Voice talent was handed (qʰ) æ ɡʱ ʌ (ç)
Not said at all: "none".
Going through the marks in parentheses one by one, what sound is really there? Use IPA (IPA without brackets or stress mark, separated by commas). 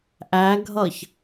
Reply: ʔ, ç